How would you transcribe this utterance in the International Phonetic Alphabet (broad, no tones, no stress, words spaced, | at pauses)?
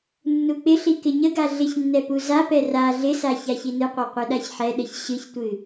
nːuk͡pɪɬi kɪɲəɡa ɮɪçnːɛ puzapɛ ra ɮɪsa çaçinɨqʷa qʷɨɗaçħɛɗəç ɕɨçtʷɨ